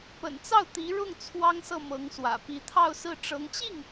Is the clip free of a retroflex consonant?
no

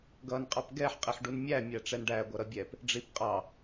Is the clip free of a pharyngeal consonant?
no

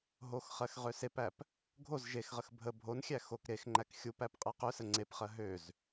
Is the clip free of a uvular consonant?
no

